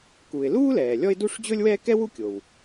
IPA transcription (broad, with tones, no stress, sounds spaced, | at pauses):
k u˩ ɪ̯ l uː˥ l ɛː˩ lʲ ɔ˥ ɪ̯ d u˥ ʂ d͡ʑ ɵ˥ lʲ w ɛː˥ k ɛ˥ w u˥ kʲ o˩ w